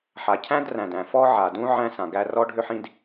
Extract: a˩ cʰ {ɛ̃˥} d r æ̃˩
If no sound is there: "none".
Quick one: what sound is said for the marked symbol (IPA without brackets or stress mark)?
æ̃˥